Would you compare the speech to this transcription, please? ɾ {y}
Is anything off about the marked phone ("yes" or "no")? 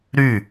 no